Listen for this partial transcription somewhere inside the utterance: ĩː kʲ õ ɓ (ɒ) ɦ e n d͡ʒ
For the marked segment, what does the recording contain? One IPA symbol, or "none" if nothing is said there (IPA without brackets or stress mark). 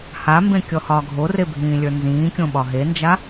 ɒ